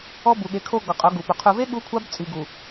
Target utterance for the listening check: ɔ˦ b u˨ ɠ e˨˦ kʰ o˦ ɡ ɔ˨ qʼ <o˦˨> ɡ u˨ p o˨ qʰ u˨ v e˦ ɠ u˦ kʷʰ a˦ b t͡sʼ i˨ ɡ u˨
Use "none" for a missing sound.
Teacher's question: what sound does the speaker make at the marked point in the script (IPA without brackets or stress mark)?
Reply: o˨˦